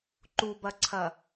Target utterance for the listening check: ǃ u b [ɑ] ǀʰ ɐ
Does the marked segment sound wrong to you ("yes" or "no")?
yes